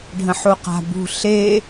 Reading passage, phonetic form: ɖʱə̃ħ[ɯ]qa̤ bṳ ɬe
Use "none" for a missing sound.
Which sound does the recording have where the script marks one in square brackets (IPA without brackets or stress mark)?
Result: u